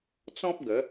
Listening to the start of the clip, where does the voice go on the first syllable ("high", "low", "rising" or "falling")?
high